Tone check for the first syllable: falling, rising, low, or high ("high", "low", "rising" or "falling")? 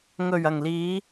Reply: low